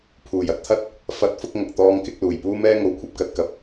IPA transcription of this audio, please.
pʰuː˨˩jɐ˧t̚t̪ʰɐ˥t̚ | fɐ˨˥t̚fʊ˧k̚ ŋɐ˨k̚t̪ɔː˥ŋkɪ˥k̚ luː˨˩jpuː˥mɛː˥ ŋo˨˥wkʷʰɐ˧p̚kɐ˧t̚kɐ˨˥p̚

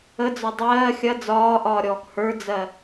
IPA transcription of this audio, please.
əd͡zɒ dˤɜː xʲɐ d͡zɒːʔɒːɾʲɔːk hə˞d͡zɜ

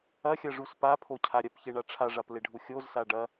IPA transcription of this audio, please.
ɐxʲɐʐus papʰocʰa ɾʲɐpçeɳa ʈ͡ʂʰaʐapleɖʱu xʲozsa ɖɐ

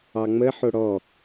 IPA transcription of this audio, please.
ɑŋ͡mə ħoɽɔ

